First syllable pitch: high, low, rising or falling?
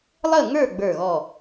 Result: falling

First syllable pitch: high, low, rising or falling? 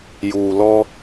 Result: low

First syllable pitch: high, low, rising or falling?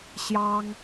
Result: high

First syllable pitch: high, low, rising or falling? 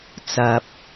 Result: low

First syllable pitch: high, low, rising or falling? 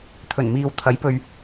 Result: low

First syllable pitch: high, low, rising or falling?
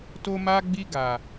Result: high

